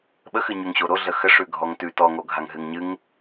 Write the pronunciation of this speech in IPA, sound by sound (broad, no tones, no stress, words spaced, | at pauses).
ɓəxɨɲʉŋɕo ɾoɮə xəʂʉ ɡʱɔŋtʉ tɔŋoɡʱaŋ ɦɨŋɲɨŋ